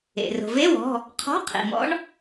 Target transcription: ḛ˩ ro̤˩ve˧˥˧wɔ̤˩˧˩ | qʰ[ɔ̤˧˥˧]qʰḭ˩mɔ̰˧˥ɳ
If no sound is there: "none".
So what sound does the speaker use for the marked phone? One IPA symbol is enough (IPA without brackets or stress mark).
ɔ̤˧˥˧